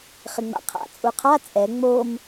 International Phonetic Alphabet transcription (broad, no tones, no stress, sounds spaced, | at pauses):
χ ɪ ŋ͡m a̰ qʰ a̰ t͡sʼ u qʰ a t͡sʼ ɛ ŋ͡m o m